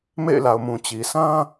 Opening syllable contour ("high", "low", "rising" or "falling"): falling